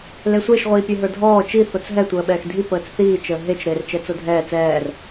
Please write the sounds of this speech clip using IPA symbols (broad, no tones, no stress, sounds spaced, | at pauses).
l e sʷ e ʃ ʁʷ iː pʲ e ɦ ə˞ dʱ ɔː t͡ʃ i θ o t͡s ɦ ɛ tʷ əː ɓ ɛː x dʱ i p əː t͡s θ iː t͡ʃ əː ɦ e t͡ʃ ɾ eː r t͡ʃ ɛ t͡s o dʱ ɛː t͡s ɛː r